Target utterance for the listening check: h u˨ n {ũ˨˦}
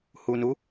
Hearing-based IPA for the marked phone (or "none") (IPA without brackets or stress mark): u˨˦